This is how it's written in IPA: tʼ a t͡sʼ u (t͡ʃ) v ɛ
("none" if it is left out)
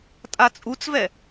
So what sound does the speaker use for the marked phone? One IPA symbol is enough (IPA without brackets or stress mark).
t͡s